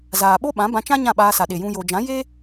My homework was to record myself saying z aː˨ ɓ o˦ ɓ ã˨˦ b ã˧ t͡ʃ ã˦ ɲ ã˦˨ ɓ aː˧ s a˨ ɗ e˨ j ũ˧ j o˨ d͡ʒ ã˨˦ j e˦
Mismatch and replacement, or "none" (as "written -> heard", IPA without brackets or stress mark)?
none